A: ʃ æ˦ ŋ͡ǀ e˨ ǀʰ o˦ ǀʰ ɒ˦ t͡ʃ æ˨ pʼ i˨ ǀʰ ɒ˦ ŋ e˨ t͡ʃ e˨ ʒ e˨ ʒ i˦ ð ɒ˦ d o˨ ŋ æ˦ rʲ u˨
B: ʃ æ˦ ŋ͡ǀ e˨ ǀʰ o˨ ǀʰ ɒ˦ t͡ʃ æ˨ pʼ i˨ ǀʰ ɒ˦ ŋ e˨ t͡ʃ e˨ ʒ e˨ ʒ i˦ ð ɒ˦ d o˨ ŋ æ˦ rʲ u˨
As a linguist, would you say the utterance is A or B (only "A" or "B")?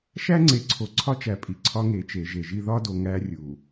B